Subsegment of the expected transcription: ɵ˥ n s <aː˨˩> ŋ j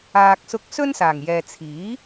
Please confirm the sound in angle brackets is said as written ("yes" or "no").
yes